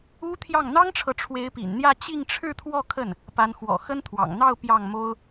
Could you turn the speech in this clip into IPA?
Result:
u˥ t̪ʰ j ɑ˥˩ ŋ n̪ ɑ˥ ŋ ʈ͡ʂʰ ɤ˨ ʈ͡ʂʰ w e˧˥ ɪ̯ p ḭ˨˩ n n̪ j ä˥˧ t͡ɕ i˥˧ ŋ ʈ͡ʂʰ ɻ̩˥˧ t̪ʰ w ɔ˥˧ kʰ ə˥˩ n | p a˧˥ n x w ɔ̰˨˩ x ə˥ n t̪ʰ w ɑ̰˨˩ ŋ n̪ ɑ˥˧ ʊ̯ p j ɑ˥˩ ŋ m o˥ ʊ̯

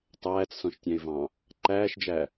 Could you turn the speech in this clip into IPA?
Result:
tˤ æː t͡s s ɔ̃ ʃ tʲ æ̃ ɪ̯ v ɑ̃ | ǃ æː ʃ d͡ʒ æ

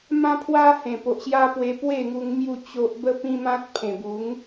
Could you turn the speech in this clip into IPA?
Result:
m ã˦ pʰ w a˦ h ẽ˨˩ p o˨ ʔ ɕ j a˦ p w e˧ p w e˥˧ ŋ u˧ ŋ m j u˥˧ t͡ɕ o˦ ʔ b ə˦ p ĩ˦ m ã˦ t̚ pʰ ẽ˨˩ b u˨˦ ŋ

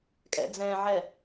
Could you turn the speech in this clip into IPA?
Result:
kʼ ɛ̰ d͡z ɛ̃ ʕ ɛ

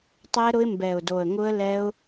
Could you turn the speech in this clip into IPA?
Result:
tˤ ɛ˦˥ ɾ ʊ˦˥ ɪ̯ m b ɛ˨˩ ʊ̯ d o˨˩ ə̯ ŋ ʊ˦˥ ə̯ l ɛ˦˥ ʊ̯

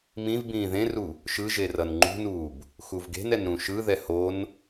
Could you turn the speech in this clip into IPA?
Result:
m ĩ v b ĩː ð ẽ r u | ʃ ɯ ʒ e r ʌ n ŋ͡ǃ ṳ n uː b | x u v ɡ e̤ n ɛ n ɾ ũ ʃ ɯ ð ɛ h o n

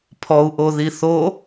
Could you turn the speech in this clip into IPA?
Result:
pʰ ɔ u̯ ʔ o ð i θ o

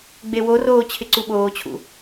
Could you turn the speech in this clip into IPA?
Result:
ɡ͡b e w o r oː t͡ɕʰ ɪ ǀ u ɓ oː t͡ɕʰ ṵ

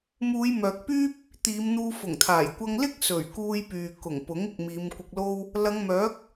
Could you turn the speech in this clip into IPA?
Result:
m uː˨˧ j m œː˨ k̚ p yː˥ p̚ | t̪ iː˨˧ m n̪ uː˧ f ʊ˨˩ ŋ t̪ʰ aː˨˩ j kʷ ɐ˧ ŋ l ɪ˥ k̚ s ɵ˨˩ ɥ k uː˧ j p yː˨ k ʊ˨˩ ŋ p ʊ˨˥ ŋ ɪ˨ k̚ m iː˨˧ m kʷ ɪ˧ k̚ l o˥ w | l ɐ˨˧ ŋ m œː˨˥ k̚

